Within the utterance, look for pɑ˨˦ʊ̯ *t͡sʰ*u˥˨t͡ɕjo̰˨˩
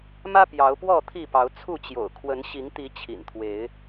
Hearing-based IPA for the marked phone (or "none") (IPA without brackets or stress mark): t͡sʰ